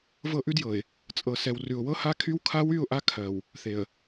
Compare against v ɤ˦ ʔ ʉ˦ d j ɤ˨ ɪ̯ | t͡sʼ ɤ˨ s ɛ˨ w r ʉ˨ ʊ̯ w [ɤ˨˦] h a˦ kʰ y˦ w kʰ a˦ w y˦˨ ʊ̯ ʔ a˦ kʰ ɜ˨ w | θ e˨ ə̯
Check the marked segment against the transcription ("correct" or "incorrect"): incorrect